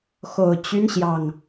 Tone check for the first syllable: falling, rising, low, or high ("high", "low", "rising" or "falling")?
low